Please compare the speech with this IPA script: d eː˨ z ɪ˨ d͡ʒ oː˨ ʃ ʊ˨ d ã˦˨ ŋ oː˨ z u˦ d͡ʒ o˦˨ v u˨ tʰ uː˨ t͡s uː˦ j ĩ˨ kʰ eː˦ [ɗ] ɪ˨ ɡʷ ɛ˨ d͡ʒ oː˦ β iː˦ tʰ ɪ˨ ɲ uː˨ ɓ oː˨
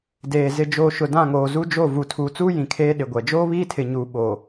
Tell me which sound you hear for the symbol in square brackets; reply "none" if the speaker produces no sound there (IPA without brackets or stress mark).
ɗ